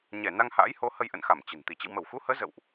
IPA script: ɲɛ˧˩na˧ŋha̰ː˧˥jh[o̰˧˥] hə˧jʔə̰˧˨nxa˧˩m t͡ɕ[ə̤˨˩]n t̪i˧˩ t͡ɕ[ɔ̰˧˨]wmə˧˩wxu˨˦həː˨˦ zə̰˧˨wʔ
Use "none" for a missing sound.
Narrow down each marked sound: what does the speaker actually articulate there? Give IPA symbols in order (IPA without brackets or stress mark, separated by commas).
o˨˦, ə̤˨˩, ə̰˧˨